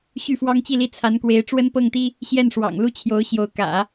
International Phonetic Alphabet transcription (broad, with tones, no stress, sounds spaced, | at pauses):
ɕ y˥˩ f w ɑ˥ ŋ t͡ɕ i˥˧ l i˥˩ t͡sʰ a˧˥ n k w e˧˥ ɪ̯ ʈ͡ʂ w ə˥ n p ɤ˥˩ ŋ t̪ i˥ | ɕ j ɛ˥˩ n ʂ w ɑ̰˨˩ ŋ l u˥ t͡ɕʰ j o˧˥ ʊ̯ ɕ j o˧˥ ʊ̯ k ä̰˨˩˦